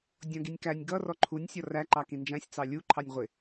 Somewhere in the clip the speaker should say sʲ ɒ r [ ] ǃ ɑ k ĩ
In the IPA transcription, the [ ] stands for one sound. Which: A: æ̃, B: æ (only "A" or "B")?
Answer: B